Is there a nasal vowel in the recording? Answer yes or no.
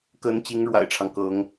no